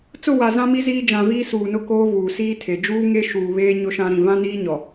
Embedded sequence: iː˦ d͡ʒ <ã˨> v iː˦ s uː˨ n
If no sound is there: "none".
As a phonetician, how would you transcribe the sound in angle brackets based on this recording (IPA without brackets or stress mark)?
ã˨